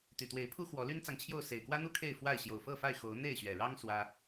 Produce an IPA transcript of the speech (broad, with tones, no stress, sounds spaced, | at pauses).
t̪ y˨˩ t̪ w e˨˦ ɪ̯ pʰ u˦ x w ɔ˨˦ l y˦ n t͡s ɑ˨ ŋ t͡ɕʰ j o˥˨ ʊ̯ s e˨˩ ɪ̯ k w ä˦ n̪ u˥˨ kʰ e˥˨ ɪ̯ f w a˥˨ ɪ̯ ɕ j o˨˩ ʊ̯ f ɤ˥˨ f a˥˨ ɪ̯ x o˨˦ ʊ̯ n̪ e˥˨ ɪ̯ ɕ ɥ ɛ˨˩ ɻ ɑ˦ ŋ s w ä˦